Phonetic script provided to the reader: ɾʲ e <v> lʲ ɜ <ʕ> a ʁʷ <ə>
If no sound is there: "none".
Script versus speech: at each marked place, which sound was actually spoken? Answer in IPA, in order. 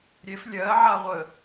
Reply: f, ʕ, ə

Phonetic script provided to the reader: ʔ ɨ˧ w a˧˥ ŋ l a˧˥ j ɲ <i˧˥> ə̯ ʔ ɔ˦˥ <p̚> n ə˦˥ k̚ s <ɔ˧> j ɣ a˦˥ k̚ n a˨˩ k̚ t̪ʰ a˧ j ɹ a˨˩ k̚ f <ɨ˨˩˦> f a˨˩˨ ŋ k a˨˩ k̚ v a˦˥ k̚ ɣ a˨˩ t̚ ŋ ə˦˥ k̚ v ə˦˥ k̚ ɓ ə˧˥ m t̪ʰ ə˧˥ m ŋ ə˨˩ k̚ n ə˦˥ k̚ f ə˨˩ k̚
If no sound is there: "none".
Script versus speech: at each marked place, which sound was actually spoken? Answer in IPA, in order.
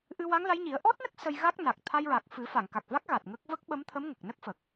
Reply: i˨˩˦, t̚, ə˧, ɨ˨˩˦

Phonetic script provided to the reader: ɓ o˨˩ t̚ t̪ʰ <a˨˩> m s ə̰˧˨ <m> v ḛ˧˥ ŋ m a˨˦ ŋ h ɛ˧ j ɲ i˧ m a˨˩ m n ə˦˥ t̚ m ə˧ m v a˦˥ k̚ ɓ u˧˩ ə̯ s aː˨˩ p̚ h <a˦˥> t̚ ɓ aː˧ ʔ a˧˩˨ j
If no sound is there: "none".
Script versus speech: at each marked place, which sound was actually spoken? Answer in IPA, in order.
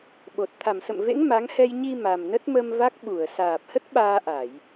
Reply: a˧˩, m, ə˦˥

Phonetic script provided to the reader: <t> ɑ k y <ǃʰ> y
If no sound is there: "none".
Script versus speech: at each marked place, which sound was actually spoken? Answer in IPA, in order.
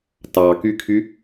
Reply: t, kʰ

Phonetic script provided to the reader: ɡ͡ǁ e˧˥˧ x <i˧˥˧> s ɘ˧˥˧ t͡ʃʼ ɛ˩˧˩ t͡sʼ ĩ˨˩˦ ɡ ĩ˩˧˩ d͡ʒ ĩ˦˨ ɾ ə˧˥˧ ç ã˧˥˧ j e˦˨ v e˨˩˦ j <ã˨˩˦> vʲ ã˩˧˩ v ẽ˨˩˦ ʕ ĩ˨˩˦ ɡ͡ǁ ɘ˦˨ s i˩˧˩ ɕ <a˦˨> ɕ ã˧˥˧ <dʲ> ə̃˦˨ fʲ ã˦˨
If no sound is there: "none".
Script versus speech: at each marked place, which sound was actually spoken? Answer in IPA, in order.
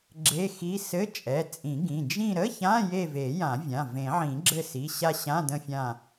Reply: i˧˥˧, ã˨˩˦, a˦˨, d

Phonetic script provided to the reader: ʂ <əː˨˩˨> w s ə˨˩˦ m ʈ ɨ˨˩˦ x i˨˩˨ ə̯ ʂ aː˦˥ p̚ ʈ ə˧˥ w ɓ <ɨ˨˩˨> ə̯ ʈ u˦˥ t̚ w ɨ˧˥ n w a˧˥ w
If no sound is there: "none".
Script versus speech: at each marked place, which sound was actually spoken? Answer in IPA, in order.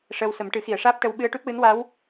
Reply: əː˧, ɨ˧

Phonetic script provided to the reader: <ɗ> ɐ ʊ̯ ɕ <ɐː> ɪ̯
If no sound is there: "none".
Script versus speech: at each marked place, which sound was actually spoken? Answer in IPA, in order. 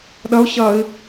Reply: ɗ, ɐː

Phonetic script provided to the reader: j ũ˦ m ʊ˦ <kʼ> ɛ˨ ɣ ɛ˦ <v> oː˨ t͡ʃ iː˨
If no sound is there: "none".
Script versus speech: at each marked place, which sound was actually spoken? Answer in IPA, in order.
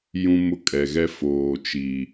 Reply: kʼ, f

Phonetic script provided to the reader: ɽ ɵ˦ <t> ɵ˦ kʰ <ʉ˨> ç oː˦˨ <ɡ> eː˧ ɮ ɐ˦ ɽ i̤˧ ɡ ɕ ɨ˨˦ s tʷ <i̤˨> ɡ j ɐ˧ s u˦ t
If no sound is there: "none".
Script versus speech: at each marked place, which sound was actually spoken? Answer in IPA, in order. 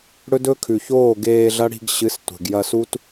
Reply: d, ʉ˨, ɡ, e̤˨

